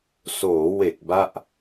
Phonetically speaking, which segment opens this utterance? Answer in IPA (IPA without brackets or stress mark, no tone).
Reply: s